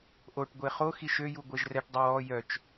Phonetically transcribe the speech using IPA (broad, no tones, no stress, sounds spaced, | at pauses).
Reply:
ʔ o ʈ ɡʷ e χ o x i ʃ ø j u ɡʷ ɛ ʒ r ɛ ʈ dˤ ɛ w ɔ j œ t͡ʃ